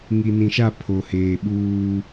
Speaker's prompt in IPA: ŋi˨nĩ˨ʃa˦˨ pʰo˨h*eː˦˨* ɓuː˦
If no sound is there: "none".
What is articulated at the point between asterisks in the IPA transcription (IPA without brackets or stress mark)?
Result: eː˨